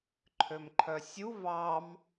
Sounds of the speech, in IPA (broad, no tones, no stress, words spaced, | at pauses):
ǃʰømǃʰœsʲu vɑm